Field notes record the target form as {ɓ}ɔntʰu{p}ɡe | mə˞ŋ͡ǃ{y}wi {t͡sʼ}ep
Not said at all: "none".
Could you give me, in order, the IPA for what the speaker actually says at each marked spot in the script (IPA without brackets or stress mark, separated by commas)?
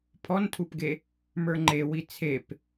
pʰ, p, e, t͡sʰ